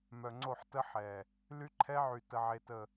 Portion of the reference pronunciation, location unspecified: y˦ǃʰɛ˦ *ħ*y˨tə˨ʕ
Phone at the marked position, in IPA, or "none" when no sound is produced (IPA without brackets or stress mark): ʕ